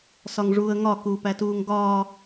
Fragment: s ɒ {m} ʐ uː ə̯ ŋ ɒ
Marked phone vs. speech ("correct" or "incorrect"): incorrect